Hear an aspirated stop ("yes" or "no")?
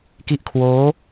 yes